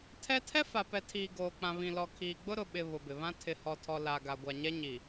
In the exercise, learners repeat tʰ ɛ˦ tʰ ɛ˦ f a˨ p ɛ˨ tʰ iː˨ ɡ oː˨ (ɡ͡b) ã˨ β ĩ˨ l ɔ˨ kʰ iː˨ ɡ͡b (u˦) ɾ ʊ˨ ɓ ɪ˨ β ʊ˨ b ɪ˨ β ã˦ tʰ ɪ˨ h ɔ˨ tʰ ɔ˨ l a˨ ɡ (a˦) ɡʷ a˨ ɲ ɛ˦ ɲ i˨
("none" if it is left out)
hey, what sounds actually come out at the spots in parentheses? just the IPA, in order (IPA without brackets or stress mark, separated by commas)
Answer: k͡p, ʊ˦, a˨